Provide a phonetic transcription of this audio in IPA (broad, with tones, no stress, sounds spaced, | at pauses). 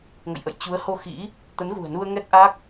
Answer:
ŋ ə̰˧˨ j ʔ ə̰˧˨ j t͡ɕ u˨˦ ə̯ h o˧ x ḭ˧˥ | t̪ ə˨˦ n ɣ ṳ˨˩ ə̯ n u˧ ə̯ ŋ ɛ˦˥ k̚ ʔ a˦˥ k̚